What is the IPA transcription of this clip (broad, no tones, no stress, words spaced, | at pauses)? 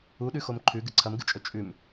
uɗʉxom ǃʰʉɡɨ ǀʰɐmɡɨt͡ʃʼɵ t͡ʃʼʉm